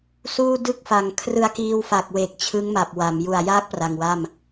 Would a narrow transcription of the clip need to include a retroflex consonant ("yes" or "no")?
no